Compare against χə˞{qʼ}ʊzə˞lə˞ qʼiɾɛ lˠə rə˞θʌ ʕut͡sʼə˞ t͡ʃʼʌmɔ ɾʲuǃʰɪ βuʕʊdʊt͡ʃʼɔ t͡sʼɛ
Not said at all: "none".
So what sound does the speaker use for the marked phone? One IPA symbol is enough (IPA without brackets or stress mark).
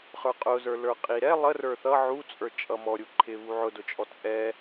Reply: qʼ